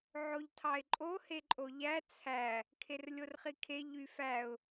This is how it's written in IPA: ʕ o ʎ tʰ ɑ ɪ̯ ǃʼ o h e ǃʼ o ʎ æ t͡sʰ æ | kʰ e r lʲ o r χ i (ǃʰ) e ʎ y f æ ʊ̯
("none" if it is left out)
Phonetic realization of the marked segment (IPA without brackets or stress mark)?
kʰ